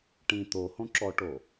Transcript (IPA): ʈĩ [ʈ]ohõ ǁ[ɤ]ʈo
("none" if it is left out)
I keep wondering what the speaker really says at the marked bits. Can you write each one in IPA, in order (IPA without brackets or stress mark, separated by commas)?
t̪, ɔ